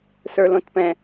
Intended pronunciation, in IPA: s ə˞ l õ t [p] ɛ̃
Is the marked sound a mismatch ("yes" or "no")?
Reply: no